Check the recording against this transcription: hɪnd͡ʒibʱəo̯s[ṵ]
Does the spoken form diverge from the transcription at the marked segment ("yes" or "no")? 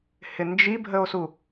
yes